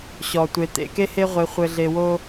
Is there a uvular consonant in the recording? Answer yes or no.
yes